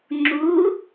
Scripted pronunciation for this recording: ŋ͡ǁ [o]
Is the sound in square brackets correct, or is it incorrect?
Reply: incorrect